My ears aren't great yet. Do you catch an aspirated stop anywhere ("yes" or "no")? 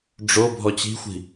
no